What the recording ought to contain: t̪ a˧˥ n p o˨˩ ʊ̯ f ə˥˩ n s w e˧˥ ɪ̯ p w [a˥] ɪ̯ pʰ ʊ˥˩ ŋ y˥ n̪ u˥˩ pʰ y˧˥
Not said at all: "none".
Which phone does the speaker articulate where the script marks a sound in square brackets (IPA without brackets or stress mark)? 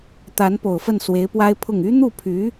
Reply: a˥